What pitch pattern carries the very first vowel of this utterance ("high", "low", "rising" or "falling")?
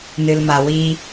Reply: low